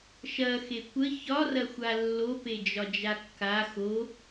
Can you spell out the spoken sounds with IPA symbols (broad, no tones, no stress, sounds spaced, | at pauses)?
ʃ ɐ x e kʷ ə ç ɒ r ɐ xʷ a lː o p e d͡ʒ ɒ d͡ʒ a kː a x o